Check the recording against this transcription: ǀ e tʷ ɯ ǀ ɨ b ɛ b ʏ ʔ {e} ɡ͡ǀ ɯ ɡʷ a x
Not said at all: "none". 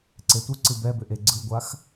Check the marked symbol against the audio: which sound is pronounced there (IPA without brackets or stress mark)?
e